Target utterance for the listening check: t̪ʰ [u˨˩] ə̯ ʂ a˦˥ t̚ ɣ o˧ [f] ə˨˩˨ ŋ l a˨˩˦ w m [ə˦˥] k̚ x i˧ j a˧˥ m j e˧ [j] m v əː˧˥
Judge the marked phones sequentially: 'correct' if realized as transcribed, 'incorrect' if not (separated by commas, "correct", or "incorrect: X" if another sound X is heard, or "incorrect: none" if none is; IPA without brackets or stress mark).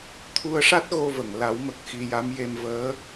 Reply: incorrect: u˧, incorrect: v, incorrect: ə˨˩, incorrect: none